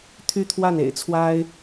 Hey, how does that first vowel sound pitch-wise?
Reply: high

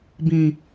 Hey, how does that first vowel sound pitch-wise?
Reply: low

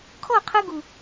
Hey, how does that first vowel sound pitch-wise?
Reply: falling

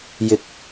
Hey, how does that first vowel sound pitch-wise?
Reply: low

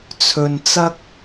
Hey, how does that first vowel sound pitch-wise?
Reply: low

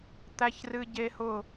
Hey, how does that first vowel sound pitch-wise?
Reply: high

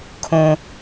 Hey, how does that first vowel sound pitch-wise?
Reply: high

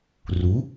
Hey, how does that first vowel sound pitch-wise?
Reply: rising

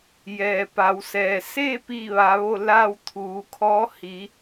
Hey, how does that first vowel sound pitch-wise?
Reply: low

